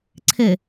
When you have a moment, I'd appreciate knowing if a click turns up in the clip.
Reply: yes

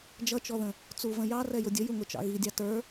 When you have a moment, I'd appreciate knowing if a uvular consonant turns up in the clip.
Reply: no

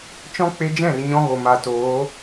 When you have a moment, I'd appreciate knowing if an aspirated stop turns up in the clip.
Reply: no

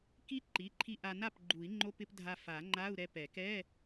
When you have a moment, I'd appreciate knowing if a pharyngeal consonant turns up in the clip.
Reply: no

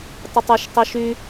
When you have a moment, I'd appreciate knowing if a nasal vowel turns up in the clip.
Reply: no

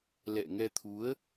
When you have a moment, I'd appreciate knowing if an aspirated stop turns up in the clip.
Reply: yes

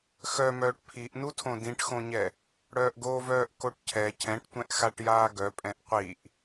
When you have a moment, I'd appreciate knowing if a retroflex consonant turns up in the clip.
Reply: yes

